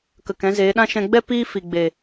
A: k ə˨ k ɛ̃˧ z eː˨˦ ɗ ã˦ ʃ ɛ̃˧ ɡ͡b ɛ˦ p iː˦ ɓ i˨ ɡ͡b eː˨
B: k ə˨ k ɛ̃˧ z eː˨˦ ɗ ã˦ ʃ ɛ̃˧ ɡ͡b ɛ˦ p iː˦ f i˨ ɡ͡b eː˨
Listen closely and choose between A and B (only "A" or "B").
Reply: B